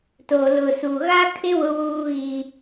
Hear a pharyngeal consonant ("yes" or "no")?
no